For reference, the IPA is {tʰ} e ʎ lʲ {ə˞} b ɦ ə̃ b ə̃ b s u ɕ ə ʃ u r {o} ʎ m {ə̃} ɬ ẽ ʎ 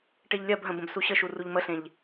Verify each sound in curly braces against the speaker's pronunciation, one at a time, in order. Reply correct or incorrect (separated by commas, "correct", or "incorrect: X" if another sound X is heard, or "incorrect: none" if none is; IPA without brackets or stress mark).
incorrect: ʈ, incorrect: ɜ, incorrect: u, incorrect: ə